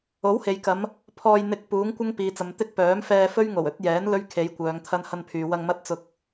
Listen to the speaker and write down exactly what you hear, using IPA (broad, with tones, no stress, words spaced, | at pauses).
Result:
o˨˥whe˨jkɐ˨˧m | pʰɔː˧jn̪ɪ˧k̚puː˨˥ŋ kʷɐ˥ŋpiː˨t͡sɐ˨mt̪ɪ˥k̚ pœː˨˥mfɛː˧fɵ˥ɥ ŋo˨˩wɵ˨˥t̚jɛː˨˥n lɵ˥ɥkʰe˨˧jkʷœː˨˧ŋ t̪ʰɐ˧nhɐ˧npʰyː˨wɐ˧ŋ mɐ˥t̚t͡sʊ˧k̚